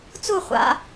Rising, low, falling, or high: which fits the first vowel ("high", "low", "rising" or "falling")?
falling